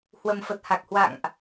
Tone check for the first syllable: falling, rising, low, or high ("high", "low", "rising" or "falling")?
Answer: low